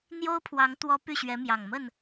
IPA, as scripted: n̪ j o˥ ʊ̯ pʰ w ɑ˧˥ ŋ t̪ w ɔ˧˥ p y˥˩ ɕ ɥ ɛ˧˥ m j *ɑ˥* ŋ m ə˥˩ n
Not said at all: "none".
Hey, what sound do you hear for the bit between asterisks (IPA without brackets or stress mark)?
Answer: ɑ˨˩